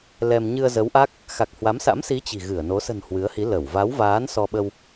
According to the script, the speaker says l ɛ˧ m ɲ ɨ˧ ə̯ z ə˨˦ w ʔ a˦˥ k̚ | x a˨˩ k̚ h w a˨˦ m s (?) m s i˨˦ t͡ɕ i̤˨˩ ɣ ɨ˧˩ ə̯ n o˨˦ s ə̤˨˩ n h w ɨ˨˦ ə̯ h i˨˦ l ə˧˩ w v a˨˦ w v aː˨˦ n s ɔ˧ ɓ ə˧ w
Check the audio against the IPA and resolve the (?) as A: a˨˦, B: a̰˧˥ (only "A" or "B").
B